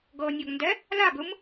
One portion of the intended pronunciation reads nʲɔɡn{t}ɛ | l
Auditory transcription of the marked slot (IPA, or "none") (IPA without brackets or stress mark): d